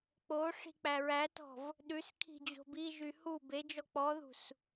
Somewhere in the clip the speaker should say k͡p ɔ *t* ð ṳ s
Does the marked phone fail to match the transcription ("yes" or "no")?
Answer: yes